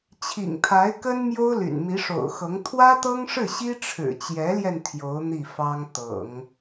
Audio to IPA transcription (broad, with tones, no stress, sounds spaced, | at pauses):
t͡ɕʰ ḭ˨˩ ŋ t̪ʰ a˧˥ ɪ̯ k ə˥ n m j o˥ ʊ̯ l y̰˨˩ n m i˧˥ ʂ o̰˨˩ ʊ̯ x ɤ˧˥ ŋ t̪ʰ w ä˥ t̪ ɤ˥ ŋ ʂ ɻ̩˥˩ ɕ i˥ ʈ͡ʂʰ ɻ̩˨˩ t͡ɕ j ɛ˧˥ l j ɛ˧ n t̪ʰ j o˧˥ ʊ̯ n̪ i˥˩ f ɑ˥ ŋ t̪ ɤ̰˨˩˦ ŋ